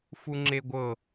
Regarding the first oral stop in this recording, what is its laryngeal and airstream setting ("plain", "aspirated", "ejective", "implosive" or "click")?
click